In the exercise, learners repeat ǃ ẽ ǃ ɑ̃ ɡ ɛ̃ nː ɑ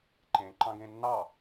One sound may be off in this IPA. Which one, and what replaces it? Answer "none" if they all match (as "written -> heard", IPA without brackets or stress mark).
ɛ̃ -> ẽ